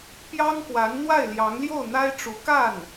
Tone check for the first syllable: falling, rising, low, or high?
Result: high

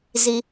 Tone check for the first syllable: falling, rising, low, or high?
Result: low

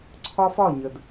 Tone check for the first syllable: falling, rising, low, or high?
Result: high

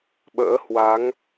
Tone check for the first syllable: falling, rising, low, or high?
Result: rising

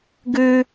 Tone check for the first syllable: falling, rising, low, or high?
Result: high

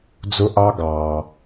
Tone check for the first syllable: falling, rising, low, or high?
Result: high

